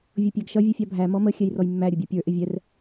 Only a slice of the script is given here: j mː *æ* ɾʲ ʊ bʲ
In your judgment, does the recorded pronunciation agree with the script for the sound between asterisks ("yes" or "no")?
yes